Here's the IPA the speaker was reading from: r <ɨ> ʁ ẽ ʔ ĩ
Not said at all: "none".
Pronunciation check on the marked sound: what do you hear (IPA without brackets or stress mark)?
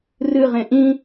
ɨ